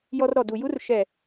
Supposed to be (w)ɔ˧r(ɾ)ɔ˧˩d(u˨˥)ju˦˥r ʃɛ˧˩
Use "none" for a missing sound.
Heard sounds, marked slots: j, ɾ, u˧˩

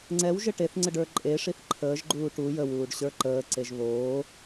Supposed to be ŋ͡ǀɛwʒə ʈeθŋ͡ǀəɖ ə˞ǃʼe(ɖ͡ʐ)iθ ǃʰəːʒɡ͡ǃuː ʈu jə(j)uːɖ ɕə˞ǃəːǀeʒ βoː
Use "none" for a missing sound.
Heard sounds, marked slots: ʂ, w

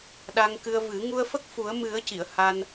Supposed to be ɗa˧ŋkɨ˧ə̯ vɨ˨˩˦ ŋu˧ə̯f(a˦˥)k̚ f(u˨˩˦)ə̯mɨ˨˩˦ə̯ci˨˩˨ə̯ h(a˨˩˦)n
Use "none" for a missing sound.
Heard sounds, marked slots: ə˦˥, u˨˩˦, a˧

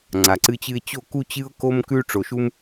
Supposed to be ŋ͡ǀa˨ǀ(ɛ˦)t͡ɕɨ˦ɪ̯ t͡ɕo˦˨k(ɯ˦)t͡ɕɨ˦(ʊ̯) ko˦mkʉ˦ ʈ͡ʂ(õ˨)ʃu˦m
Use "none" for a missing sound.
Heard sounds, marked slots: ɨ˦, u˦, ʊ̯, o˨

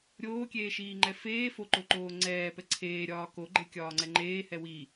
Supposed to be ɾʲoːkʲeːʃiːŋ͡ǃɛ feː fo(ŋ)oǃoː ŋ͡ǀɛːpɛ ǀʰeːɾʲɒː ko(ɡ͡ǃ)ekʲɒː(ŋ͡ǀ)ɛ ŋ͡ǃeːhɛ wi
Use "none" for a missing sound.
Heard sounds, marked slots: ǃ, ɡ͡ǃ, ŋ͡ǀ

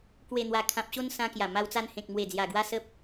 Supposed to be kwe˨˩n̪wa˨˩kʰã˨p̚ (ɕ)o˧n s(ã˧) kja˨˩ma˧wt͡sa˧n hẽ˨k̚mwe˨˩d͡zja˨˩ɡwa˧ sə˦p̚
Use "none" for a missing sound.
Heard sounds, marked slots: ɕ, ã˧

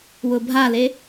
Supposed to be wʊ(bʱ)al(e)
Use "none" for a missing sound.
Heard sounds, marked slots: bʱ, e

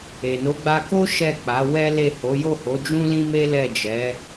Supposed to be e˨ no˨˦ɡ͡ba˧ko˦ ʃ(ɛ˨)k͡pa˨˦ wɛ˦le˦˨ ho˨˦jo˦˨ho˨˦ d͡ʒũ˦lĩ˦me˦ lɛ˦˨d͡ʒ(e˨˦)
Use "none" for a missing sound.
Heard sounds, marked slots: ɛ˦˨, ɛ˨˦

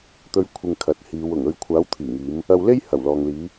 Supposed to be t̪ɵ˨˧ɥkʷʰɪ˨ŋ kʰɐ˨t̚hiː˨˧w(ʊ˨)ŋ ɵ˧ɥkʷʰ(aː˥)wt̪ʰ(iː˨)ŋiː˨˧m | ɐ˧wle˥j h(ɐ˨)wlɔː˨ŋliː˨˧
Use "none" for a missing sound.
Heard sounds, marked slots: ʊ˨˩, aː˨˥, iː˨˩, ɐ˨˩

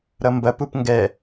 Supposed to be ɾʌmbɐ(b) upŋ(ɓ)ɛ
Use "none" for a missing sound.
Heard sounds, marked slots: p, ɡ

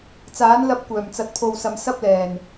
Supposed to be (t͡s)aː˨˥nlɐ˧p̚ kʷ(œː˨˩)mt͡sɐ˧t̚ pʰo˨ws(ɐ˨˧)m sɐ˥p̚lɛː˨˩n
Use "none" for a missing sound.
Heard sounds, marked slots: t͡s, œː˨˩, ɐ˨

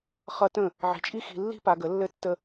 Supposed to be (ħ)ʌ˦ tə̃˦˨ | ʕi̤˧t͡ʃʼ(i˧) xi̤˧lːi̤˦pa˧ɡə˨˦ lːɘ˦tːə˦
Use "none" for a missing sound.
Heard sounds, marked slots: χ, i˦

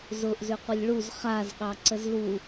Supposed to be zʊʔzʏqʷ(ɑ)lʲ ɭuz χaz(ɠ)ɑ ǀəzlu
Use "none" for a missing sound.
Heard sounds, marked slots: ə, ɠ

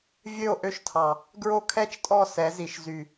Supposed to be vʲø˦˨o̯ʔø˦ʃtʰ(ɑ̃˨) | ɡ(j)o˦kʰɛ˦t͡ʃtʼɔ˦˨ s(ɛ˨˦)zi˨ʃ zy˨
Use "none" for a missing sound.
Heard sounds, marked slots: ɑ˨, ɹ, ɛ˨˦

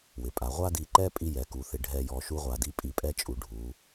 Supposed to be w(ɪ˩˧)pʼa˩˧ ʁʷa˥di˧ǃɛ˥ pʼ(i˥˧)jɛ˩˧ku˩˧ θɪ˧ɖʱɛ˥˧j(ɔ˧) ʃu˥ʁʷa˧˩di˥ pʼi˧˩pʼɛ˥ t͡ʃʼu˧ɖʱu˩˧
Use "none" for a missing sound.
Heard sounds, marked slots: ɪ˩˧, i˥, ɔ˧

